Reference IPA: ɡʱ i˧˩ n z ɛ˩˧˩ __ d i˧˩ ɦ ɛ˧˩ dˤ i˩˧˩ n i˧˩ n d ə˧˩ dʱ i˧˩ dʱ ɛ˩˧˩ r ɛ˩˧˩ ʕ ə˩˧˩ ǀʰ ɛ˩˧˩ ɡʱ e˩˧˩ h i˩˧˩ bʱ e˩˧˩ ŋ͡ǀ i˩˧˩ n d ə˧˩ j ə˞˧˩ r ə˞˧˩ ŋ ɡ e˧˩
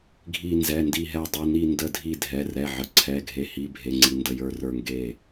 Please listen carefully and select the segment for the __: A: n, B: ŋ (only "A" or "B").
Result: A